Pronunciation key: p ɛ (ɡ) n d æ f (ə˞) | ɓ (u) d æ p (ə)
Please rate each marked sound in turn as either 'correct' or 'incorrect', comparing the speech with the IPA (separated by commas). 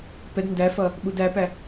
incorrect, incorrect, correct, incorrect